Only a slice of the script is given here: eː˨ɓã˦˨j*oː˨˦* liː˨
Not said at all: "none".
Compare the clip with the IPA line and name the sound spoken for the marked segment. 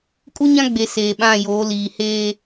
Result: oː˨˦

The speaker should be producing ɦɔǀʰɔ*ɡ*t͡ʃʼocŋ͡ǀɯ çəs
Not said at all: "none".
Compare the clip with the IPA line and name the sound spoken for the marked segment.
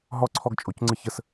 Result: ɡ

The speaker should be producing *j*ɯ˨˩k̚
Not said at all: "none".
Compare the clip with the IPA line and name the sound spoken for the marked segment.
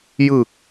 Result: j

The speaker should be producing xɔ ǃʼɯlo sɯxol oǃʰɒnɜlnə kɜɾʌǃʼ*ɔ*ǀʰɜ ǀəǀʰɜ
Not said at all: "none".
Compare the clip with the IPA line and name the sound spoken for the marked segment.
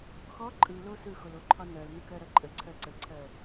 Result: ə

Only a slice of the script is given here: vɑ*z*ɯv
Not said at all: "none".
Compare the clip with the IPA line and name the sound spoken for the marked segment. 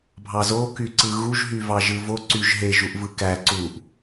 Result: ʒ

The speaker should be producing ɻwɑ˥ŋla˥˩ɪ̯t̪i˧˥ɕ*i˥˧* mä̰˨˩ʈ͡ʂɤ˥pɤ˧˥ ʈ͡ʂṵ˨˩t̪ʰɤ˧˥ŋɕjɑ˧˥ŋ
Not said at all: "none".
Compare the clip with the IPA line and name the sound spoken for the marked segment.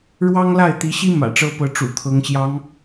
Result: i˥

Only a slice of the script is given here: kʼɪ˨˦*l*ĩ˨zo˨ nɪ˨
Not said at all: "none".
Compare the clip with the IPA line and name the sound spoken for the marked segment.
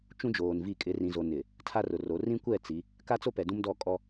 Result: r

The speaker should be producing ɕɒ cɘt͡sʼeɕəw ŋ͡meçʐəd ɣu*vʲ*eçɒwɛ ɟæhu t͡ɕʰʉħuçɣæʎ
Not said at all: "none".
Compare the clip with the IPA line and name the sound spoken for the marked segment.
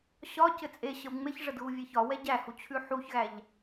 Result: vʲ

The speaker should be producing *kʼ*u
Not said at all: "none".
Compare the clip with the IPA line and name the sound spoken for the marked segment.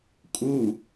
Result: kʼ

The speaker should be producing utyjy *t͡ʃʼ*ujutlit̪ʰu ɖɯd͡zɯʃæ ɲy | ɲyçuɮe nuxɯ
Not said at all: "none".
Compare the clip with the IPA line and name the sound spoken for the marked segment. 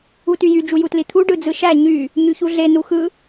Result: d͡ʒ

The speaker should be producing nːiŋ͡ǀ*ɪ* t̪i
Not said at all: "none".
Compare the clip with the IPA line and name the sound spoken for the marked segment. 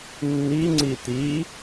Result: i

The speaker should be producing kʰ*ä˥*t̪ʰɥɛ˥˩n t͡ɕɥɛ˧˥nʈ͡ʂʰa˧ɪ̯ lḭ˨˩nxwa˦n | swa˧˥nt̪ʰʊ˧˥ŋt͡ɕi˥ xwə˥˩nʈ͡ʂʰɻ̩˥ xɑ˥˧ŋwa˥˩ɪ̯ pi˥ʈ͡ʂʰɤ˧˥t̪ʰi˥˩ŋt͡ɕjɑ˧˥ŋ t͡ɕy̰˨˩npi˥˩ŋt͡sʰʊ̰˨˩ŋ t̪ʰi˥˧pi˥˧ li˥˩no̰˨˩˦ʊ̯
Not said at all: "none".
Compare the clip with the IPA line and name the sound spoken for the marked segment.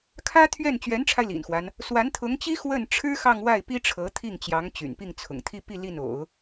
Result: ä˥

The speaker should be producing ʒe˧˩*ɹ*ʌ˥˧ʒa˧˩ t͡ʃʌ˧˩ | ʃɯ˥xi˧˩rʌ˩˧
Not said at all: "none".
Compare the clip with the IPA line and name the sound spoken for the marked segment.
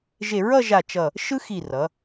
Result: ɹ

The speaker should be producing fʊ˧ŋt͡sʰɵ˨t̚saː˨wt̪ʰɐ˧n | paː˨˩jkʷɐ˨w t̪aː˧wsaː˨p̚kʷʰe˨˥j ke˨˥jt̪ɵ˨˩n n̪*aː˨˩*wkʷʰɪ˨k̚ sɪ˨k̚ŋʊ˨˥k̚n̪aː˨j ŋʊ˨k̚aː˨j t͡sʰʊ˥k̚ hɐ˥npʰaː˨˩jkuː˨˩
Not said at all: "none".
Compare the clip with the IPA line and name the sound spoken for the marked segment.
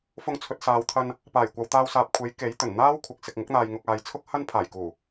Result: aː˥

